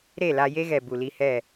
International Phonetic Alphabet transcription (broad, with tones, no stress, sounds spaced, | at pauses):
ɾ e˦˨ l a˧ j e˦ ɣ ɛ˨ b u˨ l i˧ h ɛ˦˨